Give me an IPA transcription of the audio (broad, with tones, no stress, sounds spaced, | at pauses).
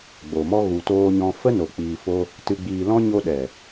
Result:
ɡ͡b o˨ m ɔ˦ ɣ u˨ t oː˧ ɲ ɔ̃˧ f ə˦ n o˨ k͡p iː˧ f o˦ | t ɨ˧ ɡ͡b iː˧ l ɔ̃˦ ɲ o˧ ɗ ɛ˨